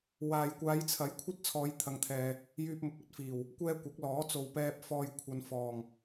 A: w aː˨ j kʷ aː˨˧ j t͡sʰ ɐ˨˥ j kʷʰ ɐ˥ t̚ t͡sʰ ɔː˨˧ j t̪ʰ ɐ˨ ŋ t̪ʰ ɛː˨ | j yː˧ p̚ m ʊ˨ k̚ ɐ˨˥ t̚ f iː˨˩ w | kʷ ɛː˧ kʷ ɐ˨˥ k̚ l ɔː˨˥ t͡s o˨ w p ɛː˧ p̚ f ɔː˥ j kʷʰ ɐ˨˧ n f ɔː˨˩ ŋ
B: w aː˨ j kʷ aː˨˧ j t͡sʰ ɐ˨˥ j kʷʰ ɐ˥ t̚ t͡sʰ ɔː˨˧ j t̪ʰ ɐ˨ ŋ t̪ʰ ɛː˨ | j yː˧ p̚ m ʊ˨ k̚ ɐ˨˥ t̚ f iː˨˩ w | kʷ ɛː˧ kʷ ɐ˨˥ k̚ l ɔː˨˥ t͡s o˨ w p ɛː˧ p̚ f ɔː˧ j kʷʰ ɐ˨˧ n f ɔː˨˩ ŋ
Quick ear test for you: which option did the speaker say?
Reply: B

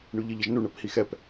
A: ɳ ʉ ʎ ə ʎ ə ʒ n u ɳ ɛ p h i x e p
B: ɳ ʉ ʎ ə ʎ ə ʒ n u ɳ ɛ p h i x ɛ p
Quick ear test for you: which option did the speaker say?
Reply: B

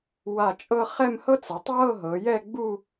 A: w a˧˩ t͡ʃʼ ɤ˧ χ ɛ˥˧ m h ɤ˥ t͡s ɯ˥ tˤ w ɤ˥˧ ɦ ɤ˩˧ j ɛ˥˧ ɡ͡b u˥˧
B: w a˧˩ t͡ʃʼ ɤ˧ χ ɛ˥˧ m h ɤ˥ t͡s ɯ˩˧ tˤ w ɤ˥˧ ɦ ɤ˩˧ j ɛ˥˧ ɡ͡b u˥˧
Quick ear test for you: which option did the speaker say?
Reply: B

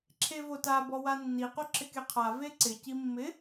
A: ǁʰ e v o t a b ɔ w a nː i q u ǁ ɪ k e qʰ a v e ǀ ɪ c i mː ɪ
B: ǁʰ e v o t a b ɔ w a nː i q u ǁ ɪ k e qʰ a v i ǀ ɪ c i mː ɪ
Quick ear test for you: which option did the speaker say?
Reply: A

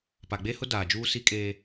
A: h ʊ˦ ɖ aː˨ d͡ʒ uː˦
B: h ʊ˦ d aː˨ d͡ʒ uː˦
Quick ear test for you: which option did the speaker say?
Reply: B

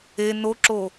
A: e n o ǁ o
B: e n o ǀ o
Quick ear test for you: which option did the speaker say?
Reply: A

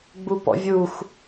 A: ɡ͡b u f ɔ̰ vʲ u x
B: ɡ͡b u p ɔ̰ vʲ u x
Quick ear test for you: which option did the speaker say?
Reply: B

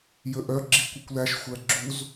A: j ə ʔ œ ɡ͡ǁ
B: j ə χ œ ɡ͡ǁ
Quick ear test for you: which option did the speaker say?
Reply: A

